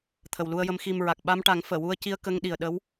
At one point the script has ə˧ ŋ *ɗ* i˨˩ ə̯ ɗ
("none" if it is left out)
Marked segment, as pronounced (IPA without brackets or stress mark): ɗ